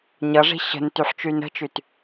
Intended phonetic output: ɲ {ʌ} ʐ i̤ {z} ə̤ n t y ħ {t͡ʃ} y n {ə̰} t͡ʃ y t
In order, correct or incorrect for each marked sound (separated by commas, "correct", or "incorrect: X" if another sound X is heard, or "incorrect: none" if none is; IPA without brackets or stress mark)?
correct, incorrect: ɕ, correct, incorrect: ə̤